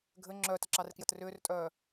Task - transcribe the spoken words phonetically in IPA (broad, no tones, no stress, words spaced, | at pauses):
ɡʱɘ ŋ͡ǁœːtəǁɑrkjət rʏːrtʼœː